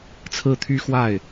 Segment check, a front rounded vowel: present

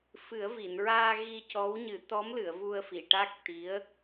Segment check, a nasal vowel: absent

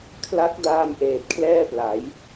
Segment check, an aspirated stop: present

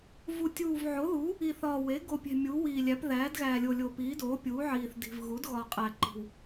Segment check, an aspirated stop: absent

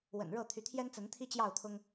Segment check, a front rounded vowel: present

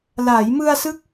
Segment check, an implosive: absent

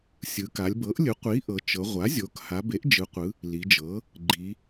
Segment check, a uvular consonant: present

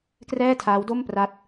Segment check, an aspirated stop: present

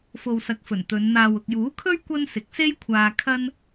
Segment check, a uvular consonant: absent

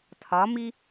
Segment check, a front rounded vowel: absent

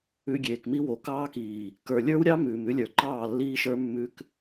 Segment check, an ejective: absent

